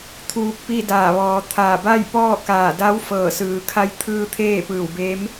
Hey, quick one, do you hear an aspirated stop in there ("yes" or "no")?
yes